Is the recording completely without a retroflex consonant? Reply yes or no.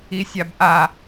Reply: yes